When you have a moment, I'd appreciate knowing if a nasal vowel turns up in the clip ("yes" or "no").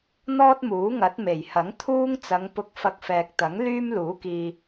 no